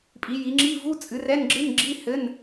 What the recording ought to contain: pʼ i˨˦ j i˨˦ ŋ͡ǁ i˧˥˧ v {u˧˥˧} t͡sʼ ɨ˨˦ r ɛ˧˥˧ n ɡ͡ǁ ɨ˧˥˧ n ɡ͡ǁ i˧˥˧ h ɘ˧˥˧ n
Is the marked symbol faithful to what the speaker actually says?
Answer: yes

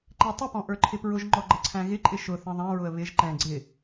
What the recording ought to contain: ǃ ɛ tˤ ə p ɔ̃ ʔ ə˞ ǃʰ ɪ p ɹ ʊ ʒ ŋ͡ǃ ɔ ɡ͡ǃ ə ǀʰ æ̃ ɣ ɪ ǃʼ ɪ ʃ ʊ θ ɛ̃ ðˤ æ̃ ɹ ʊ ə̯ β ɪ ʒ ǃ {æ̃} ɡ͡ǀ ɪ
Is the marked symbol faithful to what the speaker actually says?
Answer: no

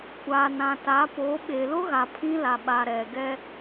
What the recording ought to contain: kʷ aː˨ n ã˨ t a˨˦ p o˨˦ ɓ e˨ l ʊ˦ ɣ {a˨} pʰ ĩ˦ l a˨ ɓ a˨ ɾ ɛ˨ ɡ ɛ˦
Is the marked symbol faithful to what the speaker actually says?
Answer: yes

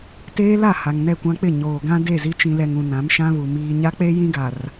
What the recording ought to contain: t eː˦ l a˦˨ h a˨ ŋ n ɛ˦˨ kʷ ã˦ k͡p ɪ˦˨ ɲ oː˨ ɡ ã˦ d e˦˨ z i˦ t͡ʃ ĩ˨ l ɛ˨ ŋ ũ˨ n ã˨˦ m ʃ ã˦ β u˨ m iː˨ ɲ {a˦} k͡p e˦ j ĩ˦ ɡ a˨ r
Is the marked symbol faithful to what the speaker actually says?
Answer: yes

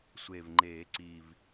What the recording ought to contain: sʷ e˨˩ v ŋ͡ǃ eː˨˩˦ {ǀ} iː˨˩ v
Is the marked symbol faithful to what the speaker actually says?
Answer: yes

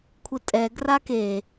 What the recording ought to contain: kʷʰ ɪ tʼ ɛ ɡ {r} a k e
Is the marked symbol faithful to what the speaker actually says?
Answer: yes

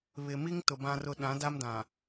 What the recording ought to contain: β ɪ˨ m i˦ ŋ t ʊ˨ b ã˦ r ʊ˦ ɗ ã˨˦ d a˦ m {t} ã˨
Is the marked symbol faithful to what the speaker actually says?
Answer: no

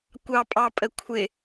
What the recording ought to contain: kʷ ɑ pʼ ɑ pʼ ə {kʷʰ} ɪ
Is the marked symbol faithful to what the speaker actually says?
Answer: yes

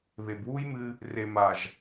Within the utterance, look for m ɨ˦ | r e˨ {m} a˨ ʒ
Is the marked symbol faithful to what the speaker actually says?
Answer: yes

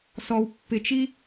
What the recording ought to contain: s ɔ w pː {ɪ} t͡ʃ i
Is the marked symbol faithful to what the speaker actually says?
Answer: yes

